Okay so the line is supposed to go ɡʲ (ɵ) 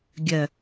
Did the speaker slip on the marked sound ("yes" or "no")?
yes